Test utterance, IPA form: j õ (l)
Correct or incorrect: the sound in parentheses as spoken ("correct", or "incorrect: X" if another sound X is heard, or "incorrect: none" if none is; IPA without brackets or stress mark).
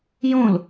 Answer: correct